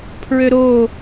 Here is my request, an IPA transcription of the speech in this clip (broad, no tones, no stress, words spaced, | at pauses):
pʰɹøɾo